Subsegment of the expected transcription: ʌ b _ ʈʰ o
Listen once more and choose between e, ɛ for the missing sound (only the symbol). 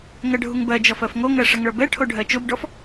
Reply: ɛ